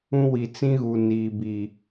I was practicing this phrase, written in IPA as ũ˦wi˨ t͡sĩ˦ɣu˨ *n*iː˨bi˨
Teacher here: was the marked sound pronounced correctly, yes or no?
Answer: yes